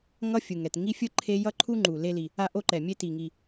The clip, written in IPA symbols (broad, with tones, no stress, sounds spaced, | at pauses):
ŋ ʌ˥ fʲ ɯ˩ ŋ ɛ˩ t ŋ i˥ fʲ ɯ˥ ǃʰ e˥ j ʌ˥ ǃʰ u˥ ŋ͡ǃ u˩ l e˥ l i˩ | a˥ ʔ o˥ ǃ ɛ˩ mʲ e˥ t i˩ ŋ i˩